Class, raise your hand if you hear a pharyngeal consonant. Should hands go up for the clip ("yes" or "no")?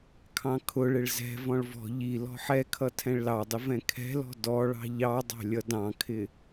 yes